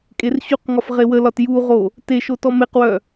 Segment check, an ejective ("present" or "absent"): present